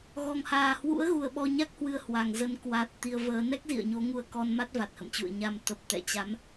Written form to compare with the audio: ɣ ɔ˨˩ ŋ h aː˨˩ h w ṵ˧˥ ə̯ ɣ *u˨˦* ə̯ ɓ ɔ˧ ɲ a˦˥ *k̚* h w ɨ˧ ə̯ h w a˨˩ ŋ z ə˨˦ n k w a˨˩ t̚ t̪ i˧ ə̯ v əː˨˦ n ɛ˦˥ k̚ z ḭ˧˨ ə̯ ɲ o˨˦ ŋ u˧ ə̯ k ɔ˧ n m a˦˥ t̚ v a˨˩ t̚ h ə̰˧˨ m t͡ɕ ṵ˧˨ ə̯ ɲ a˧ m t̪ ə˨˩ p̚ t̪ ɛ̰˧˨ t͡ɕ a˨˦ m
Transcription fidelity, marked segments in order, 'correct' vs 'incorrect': incorrect: u˨˩, correct

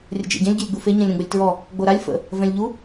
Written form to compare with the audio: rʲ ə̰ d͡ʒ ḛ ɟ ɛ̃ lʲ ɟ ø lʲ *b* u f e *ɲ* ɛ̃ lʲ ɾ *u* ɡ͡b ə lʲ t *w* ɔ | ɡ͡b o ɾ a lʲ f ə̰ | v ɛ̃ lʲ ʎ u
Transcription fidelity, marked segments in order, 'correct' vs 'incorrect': incorrect: ɡ͡b, correct, incorrect: ũ, incorrect: ɹ

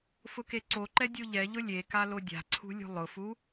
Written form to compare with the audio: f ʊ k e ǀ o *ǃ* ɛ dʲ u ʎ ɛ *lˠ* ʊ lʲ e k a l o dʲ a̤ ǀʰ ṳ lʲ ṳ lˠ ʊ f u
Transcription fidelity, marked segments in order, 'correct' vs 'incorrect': correct, incorrect: ʎ

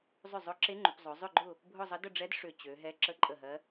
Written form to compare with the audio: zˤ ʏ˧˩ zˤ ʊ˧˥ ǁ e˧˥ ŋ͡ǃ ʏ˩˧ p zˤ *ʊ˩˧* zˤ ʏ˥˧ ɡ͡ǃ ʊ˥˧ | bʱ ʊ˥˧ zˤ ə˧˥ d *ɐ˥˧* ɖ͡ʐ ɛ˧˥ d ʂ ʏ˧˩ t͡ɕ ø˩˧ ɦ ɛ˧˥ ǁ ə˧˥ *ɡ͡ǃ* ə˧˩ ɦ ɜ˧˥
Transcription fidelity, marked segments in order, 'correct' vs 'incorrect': correct, incorrect: ə˥˧, incorrect: ǃʼ

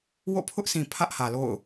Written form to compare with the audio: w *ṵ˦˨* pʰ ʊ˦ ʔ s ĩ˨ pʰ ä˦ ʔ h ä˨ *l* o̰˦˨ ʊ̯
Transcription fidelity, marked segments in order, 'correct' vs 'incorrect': incorrect: o̰˦˨, correct

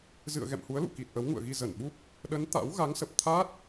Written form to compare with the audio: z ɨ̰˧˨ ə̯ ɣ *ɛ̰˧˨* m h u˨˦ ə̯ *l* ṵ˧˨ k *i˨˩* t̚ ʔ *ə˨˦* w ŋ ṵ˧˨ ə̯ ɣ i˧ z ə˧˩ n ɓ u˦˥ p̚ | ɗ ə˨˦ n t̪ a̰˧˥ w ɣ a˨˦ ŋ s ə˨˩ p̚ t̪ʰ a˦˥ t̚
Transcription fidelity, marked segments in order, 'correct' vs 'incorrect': correct, correct, correct, correct

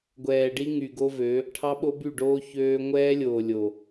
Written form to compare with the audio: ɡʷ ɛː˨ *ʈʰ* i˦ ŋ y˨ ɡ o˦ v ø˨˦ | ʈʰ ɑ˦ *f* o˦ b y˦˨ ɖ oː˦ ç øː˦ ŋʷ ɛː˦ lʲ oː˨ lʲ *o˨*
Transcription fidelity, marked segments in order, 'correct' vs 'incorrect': incorrect: ɖ, incorrect: ɓ, correct

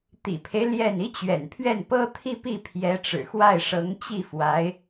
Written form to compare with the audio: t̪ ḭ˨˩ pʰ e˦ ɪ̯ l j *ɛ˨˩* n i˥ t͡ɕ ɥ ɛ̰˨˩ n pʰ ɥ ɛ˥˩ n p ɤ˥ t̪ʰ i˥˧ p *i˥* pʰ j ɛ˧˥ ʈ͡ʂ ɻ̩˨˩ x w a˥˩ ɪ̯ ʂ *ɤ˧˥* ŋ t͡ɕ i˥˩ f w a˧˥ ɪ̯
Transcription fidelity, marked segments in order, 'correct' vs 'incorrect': incorrect: ɛ˥˩, incorrect: i˥˩, correct

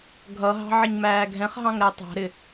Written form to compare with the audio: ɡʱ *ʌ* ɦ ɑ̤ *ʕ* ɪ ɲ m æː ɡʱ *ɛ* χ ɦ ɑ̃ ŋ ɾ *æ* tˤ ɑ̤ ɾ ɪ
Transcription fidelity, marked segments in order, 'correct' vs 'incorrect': correct, correct, incorrect: ɛ̃, correct

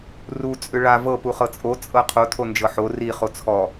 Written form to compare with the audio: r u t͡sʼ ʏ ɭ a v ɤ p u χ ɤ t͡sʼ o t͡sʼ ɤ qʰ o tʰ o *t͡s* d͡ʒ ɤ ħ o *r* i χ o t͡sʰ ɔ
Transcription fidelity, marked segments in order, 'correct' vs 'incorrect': incorrect: n, correct

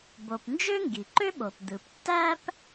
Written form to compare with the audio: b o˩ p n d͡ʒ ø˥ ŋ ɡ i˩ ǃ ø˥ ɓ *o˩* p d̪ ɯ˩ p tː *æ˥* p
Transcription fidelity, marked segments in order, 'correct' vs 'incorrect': correct, correct

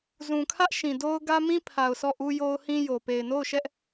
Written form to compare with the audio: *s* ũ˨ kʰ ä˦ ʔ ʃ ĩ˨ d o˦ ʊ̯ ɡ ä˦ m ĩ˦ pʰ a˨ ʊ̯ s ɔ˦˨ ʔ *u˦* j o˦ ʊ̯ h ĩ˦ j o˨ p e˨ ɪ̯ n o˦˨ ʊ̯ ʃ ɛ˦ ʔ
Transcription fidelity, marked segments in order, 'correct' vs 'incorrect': incorrect: z, correct

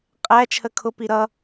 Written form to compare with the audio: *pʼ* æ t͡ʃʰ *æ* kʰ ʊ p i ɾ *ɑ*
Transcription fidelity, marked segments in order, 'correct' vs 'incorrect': incorrect: qʼ, incorrect: ə, incorrect: ʌ

